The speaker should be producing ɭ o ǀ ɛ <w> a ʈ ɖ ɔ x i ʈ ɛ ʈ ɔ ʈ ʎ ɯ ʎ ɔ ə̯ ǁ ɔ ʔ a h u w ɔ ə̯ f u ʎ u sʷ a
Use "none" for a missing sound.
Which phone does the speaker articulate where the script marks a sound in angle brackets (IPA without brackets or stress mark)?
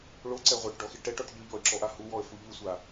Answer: ʁʷ